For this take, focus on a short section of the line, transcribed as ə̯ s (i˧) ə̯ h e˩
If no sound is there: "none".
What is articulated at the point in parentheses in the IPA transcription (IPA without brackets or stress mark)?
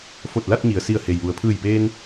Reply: i˧˩